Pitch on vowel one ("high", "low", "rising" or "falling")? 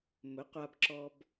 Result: rising